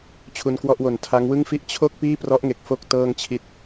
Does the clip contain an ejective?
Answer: no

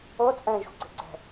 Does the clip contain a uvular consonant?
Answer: no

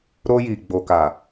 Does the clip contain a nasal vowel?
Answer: no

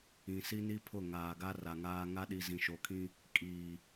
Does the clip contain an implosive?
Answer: yes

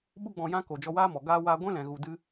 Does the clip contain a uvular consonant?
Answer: no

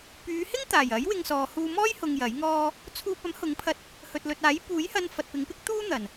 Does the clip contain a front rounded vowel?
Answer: yes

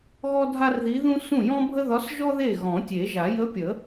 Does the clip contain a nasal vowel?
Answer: yes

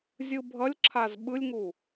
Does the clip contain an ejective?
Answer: no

